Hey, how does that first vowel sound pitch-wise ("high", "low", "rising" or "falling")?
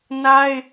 high